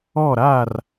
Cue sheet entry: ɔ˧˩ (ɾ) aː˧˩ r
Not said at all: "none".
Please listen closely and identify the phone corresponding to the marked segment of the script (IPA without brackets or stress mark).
ɾ